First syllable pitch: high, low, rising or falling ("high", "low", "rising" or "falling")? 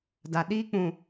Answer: low